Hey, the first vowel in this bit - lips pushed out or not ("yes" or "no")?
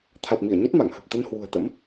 no